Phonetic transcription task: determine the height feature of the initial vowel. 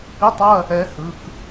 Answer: high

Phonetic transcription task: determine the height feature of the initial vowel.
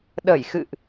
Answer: mid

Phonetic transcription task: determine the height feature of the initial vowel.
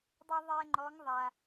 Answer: high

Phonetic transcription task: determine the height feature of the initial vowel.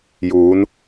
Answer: high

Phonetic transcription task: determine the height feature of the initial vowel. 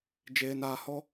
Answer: mid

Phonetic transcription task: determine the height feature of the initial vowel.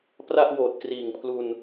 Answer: low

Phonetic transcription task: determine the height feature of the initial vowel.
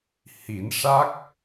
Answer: high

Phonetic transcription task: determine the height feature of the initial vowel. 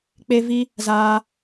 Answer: mid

